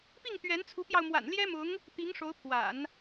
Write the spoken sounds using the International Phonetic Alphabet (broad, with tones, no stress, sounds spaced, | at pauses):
p i˥˩ ŋ t̪ ɥ ɛ˧˥ n t͡sʰ u˧˥ p j ɑ˧ ʊ̯ m w a̰˨˩ n l j ɛ˥ m ʊ˧˥ ŋ | t̪ i˧˥ ŋ ʂ o˧˥ ʊ̯ pʰ w a̰˨˩˦ n